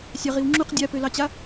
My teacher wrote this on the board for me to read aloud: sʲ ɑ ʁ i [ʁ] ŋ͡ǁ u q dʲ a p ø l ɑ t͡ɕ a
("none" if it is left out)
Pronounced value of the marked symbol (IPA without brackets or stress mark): w